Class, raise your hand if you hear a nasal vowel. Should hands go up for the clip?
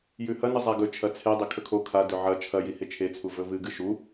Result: no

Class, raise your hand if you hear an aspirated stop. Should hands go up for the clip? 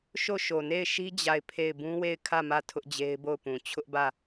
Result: yes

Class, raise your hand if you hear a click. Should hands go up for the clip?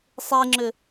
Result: yes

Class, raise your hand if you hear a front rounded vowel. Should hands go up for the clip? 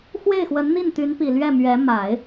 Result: yes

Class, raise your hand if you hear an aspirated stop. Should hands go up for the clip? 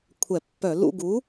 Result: yes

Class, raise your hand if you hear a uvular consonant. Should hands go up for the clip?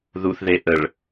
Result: no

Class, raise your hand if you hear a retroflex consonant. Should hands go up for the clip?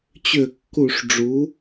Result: yes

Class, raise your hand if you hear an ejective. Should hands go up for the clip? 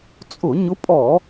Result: yes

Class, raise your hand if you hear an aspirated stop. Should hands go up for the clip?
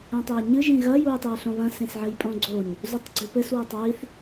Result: no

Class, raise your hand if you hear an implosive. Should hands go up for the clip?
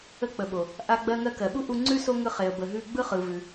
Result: yes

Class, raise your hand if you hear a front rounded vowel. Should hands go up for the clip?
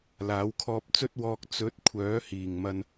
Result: yes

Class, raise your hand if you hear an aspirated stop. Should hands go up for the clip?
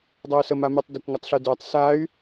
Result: no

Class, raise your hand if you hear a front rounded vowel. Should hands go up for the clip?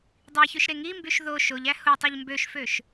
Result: yes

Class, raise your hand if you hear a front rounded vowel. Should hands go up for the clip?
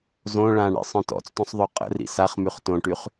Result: yes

